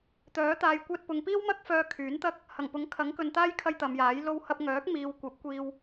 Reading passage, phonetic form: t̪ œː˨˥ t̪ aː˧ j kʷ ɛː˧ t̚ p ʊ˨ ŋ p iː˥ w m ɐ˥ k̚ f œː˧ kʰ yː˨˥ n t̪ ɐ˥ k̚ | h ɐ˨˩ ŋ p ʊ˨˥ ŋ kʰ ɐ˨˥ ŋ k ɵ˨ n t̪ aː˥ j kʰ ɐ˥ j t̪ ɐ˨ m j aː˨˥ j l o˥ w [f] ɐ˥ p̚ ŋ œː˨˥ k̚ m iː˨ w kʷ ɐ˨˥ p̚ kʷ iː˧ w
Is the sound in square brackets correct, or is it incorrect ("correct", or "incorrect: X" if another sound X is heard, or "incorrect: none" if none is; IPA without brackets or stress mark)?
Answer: incorrect: h